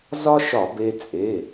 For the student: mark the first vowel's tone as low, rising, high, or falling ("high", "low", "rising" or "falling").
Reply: high